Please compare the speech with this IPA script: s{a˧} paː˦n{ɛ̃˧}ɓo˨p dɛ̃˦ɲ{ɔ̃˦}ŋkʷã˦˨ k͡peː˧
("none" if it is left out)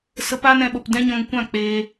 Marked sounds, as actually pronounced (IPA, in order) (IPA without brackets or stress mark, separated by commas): ə˧, ɛ̃˧, ɔ̃˧